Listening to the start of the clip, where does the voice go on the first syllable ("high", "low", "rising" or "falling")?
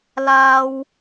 high